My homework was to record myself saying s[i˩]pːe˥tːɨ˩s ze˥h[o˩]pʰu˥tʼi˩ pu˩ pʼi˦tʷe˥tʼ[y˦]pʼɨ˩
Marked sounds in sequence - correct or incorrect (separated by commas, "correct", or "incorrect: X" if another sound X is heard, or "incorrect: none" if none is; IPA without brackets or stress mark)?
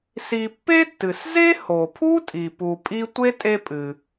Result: incorrect: i˨, correct, incorrect: e˦